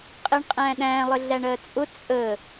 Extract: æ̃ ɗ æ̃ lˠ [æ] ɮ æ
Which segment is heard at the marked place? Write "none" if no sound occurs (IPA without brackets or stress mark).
ə